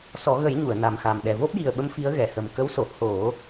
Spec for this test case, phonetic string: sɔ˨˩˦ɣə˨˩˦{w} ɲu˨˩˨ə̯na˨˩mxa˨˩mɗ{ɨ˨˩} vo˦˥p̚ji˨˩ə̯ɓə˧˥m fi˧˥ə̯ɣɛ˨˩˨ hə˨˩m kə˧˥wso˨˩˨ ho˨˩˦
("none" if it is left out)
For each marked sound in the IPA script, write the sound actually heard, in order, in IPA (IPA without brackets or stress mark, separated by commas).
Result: j, ɛ˨˩